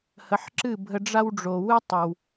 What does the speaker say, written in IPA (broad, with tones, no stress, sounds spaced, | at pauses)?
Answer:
h ə˩˥ ħ ǁ ɨ˥˩ bʱ ə˧ ɖ͡ʐ a˥ w ɖ͡ʐ o˩ w ɨ˥ tˤ ʌ˩ w